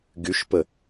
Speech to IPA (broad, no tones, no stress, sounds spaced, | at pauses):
ɡ y ʃ p ə